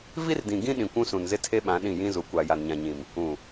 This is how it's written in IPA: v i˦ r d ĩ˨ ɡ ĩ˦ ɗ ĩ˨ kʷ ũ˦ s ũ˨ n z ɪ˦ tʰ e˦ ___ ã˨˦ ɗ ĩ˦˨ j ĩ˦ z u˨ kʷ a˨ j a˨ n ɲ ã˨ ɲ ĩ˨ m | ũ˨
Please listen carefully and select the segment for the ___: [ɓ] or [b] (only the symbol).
ɓ